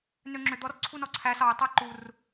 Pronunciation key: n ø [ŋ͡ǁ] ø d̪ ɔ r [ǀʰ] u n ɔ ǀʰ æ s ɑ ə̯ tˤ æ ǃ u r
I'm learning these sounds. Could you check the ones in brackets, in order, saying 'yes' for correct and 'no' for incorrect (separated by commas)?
yes, yes